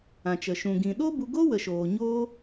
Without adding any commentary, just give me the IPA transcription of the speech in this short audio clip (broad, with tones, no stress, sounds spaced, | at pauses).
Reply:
ã˨ t͡ʃ ə˨ ʃ ũ˨ ɡ ĩ˨ ɗ o˦ b u˧ ɡ o˦ w ə˨ ʃ oː˨ ɲ oː˦